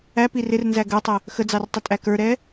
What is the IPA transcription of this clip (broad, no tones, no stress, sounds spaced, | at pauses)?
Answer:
æ p i r ɪ r n z æ ɡ ə˞ tˤ ə | x ə d͡z ɑ r tˤ ʊ tʼ æ k ə˞ ɾ ɛ